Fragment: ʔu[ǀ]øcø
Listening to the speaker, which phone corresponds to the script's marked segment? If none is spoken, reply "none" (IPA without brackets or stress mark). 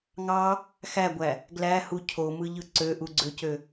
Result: ɡ͡ǀ